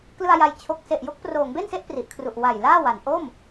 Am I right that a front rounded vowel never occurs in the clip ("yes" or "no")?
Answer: yes